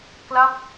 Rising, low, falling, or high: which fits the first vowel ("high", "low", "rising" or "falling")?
falling